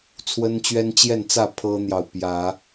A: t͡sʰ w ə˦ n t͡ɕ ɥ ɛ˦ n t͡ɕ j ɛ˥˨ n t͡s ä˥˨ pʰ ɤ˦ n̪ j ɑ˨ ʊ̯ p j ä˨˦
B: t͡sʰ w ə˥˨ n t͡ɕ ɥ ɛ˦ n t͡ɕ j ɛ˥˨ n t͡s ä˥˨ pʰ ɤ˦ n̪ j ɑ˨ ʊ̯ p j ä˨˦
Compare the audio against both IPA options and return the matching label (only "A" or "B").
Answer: A